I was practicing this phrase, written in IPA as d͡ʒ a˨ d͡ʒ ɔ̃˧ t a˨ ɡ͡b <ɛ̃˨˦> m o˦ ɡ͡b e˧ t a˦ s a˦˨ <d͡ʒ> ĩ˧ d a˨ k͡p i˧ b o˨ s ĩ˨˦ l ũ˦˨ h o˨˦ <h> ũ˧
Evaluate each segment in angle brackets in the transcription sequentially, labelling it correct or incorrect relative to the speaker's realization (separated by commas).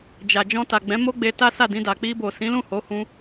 correct, incorrect, correct